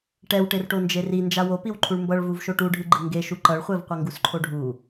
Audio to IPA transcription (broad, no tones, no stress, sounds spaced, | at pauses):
ʈ ɛ w ʈ e r ʈ o n d͡ʒ e r i n d͡ʒ a w o p i w ǃʰ u ɭ m b ʌ ɭ v u v ʃ o ʈ u ɖʱ ɯ ɡ͡ǃ ɯ ŋ ɡ e ʃ u ǃ ʌ ɭ χʷ ɛ v qʷ ʌ ŋ ɡ u s ǃʰ o ɖʱ u